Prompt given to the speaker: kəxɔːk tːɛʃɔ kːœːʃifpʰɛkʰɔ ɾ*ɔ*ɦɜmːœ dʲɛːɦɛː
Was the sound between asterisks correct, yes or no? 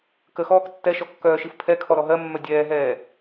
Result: yes